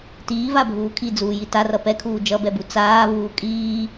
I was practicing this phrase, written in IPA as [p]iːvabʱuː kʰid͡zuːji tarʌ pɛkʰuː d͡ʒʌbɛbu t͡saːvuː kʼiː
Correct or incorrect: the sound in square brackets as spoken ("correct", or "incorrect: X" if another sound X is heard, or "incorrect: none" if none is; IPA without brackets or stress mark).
incorrect: t